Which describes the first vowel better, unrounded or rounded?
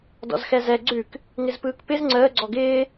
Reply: rounded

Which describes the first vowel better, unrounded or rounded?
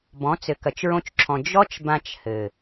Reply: rounded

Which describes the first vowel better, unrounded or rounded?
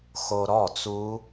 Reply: rounded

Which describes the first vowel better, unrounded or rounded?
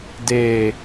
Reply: unrounded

